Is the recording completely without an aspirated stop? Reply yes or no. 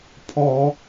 no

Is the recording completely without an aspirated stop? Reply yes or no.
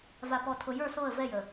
no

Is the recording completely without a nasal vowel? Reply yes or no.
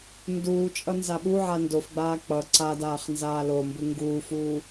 yes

